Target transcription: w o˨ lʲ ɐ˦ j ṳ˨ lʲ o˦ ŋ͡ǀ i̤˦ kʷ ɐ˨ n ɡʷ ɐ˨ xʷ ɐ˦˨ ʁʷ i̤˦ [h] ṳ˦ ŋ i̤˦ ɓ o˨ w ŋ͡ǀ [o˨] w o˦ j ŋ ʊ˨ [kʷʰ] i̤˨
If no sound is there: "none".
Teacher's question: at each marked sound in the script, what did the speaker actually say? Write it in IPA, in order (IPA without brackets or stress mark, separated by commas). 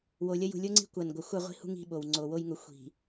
h, o˨, xʷ